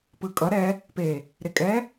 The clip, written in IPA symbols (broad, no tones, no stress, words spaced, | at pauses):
pɯkʼʌ ɾɛ | pe | ɾekʼɛ